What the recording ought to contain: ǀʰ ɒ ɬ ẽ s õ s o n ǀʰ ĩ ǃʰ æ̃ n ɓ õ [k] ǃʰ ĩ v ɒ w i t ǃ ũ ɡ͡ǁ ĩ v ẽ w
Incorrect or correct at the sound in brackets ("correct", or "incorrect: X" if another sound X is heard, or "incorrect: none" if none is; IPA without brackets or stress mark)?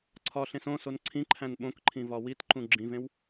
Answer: correct